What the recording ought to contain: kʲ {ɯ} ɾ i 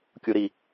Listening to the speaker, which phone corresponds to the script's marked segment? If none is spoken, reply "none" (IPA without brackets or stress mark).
u